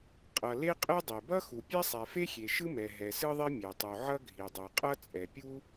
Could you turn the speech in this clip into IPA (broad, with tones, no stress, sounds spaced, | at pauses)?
qʼ ʌ˨ l e˥ qʼ e˥ dˤ i˨ b ʌ˥ x u˨ pʲ ɛ˥ sˤ ɛ˨ f e˥ xʲ e˨ ʃ ɯ˥ m ɛ˨ ɦ ɛ˨ s ɯ˥ ðˤ i˥ mʲ ɛ˨ tˤ u˨ ʕ ʌ˥ ɡʱ i˨ dˤ o˨ qʼ ʌ˥ t͡sʼ ɛ˨ pʲ u˥